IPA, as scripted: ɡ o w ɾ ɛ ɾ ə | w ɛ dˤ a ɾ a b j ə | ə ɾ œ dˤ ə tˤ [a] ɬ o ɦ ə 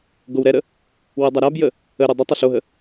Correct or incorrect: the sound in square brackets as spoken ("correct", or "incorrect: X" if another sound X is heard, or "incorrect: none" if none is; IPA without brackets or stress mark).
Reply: incorrect: ə